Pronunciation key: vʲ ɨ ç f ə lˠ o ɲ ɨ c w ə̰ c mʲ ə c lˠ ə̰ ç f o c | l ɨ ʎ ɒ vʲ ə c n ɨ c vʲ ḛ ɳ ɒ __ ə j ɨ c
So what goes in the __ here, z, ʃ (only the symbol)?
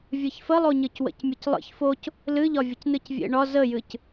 z